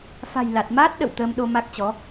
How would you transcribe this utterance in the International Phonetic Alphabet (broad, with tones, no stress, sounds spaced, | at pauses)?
f a̤˨˩ j l a˨˩ t̚ m aː˦˥ t̚ ɗ ə̰˧˨ w t̪ əː˧ m ɗ o˧ m a˦˥ k̚ t͡ɕ ɔ˨˦